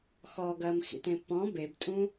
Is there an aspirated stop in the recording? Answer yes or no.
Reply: no